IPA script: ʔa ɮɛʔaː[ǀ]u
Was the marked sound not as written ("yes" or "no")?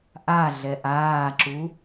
yes